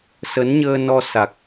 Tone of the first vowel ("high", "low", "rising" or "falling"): rising